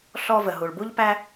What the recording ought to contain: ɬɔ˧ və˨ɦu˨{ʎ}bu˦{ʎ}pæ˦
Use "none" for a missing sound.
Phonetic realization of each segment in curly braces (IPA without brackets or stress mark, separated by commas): ɭ, ʎ